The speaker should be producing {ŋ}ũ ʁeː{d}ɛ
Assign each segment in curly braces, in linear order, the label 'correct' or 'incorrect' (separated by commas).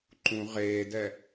incorrect, correct